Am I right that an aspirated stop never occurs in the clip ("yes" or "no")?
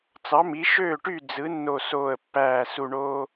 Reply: yes